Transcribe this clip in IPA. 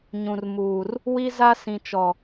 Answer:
ɲ ũ˨ r m uː˨ r | w i˦ z a˦ s ĩ˨ t͡ʃ ɔ˨

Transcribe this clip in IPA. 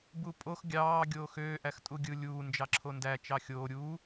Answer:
b u pʼ o x ɡʲ ɑː ɡʲ oː x øː ʔ æ x tʼ u ɡʲ ɯ lʲ uː n d͡ʒ ɑ ǁʰ o n d æ t͡ʃ ɑ xʲ oː ɾʲ uː

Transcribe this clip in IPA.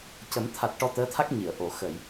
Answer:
c ə˨˩˦ m t̪ʰ a˨˩ t̚ ʈ ɔ˧ t̪ əː˧˥ t̪ʰ a˦˥ k̚ ɲ i˨˩˨ ə̯ ʔ o˨˩˨ x ə˨˩˨ j

